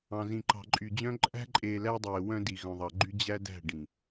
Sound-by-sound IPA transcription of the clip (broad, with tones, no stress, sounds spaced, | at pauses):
ɑ̃˨ z ĩ˨ ǃ ɑ̤˨ ǃʼ y˨ d͡ʑ œ̃˦ ǃʼ æ̤˦ ǃʼ eː˨ l æ˦ dˤ eː˨ w œ̃˦ d i˨ ɣ œ̃˨ ðˤ ɑ˨ ɡ͡ǃ y˦ d͡ʑ æ˦ d æ̤˦˨ ɖ ĩ˨